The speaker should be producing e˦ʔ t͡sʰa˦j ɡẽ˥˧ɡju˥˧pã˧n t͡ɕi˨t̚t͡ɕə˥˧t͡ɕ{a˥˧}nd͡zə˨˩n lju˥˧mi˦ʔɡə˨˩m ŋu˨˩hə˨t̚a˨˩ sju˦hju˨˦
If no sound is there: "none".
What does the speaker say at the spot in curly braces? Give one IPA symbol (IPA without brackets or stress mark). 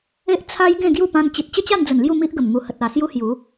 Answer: a˥˧